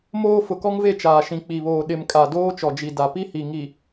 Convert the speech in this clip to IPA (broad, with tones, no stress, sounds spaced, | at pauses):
m oː˦ f ʊ˨ k ɔ˦ ŋ v e˦˨ t͡ʃ aː˨ ʃ ĩ˨ k͡p i˨ β oː˨ ɗ ɪ˨ m kʼ a˨ d oː˦ t͡ʃ ɔ˨ d͡ʒ i˨ d a˨ p i˦ h i˨ ŋ i˨